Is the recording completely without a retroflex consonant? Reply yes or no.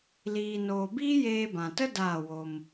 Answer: yes